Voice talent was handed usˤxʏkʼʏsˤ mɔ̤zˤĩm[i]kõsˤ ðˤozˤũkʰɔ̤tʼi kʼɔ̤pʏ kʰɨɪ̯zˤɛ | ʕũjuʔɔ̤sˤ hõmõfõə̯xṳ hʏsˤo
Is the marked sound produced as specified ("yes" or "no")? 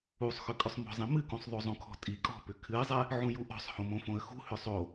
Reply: no